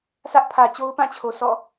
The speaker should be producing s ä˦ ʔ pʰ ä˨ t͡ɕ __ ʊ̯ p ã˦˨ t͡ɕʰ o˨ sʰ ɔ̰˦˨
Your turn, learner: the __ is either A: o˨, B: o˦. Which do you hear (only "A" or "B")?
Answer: B